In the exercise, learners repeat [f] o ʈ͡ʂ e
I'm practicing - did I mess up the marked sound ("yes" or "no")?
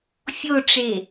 yes